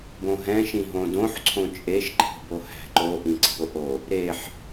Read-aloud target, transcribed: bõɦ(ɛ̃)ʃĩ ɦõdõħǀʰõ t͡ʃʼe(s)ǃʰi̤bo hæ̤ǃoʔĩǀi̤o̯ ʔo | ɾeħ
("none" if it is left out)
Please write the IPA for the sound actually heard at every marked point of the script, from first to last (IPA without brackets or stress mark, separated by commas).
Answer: ɛ̃, ʃ